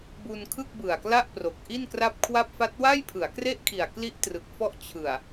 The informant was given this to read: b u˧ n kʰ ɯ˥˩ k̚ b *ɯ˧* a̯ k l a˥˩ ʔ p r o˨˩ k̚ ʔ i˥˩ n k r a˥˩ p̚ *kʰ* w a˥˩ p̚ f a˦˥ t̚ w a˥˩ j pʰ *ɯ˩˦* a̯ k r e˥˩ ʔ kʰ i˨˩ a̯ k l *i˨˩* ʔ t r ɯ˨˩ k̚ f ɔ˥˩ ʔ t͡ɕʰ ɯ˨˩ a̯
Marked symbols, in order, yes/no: no, yes, yes, no

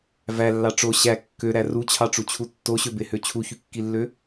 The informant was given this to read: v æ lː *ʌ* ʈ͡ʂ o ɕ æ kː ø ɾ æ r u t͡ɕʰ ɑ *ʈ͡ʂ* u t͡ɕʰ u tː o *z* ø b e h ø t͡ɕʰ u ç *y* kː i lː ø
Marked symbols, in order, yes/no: no, yes, no, yes

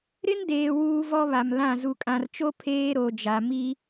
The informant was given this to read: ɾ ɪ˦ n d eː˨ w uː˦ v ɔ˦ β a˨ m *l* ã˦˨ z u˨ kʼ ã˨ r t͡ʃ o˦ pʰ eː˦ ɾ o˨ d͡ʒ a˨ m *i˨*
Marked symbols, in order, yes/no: yes, no

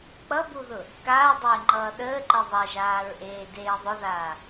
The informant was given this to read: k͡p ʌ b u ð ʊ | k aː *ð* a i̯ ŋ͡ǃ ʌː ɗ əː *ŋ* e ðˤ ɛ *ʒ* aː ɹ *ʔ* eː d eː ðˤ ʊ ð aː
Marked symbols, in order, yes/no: no, no, yes, yes

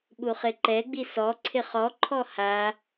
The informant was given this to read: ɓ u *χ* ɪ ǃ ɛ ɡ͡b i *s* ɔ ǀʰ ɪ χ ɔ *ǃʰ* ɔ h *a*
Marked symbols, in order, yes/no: yes, yes, yes, yes

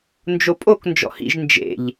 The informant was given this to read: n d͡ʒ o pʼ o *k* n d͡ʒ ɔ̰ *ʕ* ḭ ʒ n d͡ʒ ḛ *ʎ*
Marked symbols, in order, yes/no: yes, no, yes

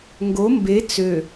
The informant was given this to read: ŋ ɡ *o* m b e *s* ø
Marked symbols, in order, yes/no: yes, no

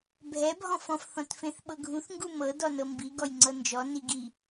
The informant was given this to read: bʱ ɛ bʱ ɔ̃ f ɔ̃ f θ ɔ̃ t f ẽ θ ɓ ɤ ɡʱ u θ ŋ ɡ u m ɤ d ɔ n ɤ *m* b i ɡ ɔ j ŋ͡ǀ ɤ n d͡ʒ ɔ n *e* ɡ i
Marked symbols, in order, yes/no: yes, no

